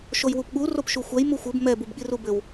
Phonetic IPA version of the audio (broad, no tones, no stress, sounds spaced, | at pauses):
ʃ o j w u p ɠ u r o p ʃ u xʷ ɛ j m u xʷ ɘ b m ɛ b u b ɠ i r u b ɘ w